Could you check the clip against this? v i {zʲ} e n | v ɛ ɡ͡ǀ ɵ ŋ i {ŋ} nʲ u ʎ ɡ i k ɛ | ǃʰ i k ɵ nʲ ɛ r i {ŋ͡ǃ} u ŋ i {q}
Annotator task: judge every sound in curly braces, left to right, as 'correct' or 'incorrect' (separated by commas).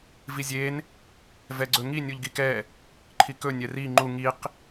correct, incorrect, correct, correct